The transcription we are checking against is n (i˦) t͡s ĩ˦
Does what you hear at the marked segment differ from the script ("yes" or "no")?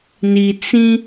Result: yes